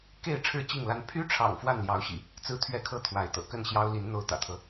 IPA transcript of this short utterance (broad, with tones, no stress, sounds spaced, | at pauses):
k e˥˨ ɪ̯ ʈ͡ʂʰ ɻ̩˥˨ t͡ɕ i˥˨ ŋ l a˦ n pʰ y˦ ʈ͡ʂʰ ɑ̰˨˩ ŋ f w a˥˨ n l j ɑ˨˦ ʊ̯ ɕ ḭ˨˩ | t͡s ɹ̩˦ t̪ʰ ɥ ɛ˦ kʰ ɤ˥˨ t̪ʰ w a˨˦ ɪ̯ t̪ ɤ̰˨˩ k ə˥˨ n ɕ j ɑ˦ ʊ̯ l i˨˦ n n̪ o˦ ʊ̯ t̪ ä̰˨˩ t̪ʰ ɤ˦